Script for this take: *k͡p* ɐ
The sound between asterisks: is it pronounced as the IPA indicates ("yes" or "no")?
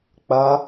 yes